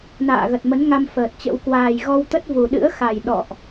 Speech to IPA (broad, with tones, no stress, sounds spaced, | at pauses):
n a̰ː˧˨ ɣ ə˨˩ t̚ m ə˨˦ n ŋ a˧ m f əː˨˩ t̚ t͡ɕ ə̰˧˥ w k w aː˨˩ j ɣ ɔ˧ w t̪ ə˦˥ t̚ v u˨˩ ɗ ɨ̰˧˥ ə̯ x a˨˩ j ɗ ɔ̰˧˨ ʔ